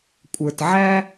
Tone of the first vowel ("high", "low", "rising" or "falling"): low